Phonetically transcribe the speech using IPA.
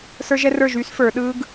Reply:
sə˞˦˥ʒɛ˦˥rə˞˥˩ʒy˦˥s fə˞˨˩˦ɗɯ˦˥ɡ

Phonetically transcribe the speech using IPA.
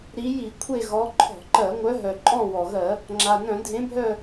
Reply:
ɾi˨˦ji˧˩˧kʷʰe˦˨ ɣɔ˨˦ǃʰɔ̤˧˩˧ǃɜ˧˩˧ ŋʷœ˨˦ɦœ˩ǃʼɔ̃˦˨ wɔ˩ɣɜ˧˩˧ | ŋ͡ǁa˩nœ̃˧˩˧ dʱẽ˨˦bʱœ˦˨

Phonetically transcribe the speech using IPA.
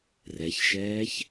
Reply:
rɛçʃɛːç

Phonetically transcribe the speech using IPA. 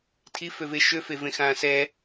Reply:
tʰiføve ʃøfevẽxãː sɛ

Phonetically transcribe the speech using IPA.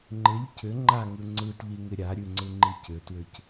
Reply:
ŋ͡ǃɪʎ cʏ ŋ͡ǃaŋɯ ŋ͡ǀɯtʎiŋɪ ɾʲaɾʲʉŋ͡ǀɯŋ͡ǃi cʏtwʏc

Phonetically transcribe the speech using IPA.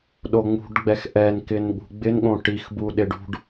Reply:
ɗoŋ͡mṳɖɡ͡bɛx ʔɛnkɪn ɠṳɡ͡bɪnɠõ ʈixbuɗɪ ɖṳɖ

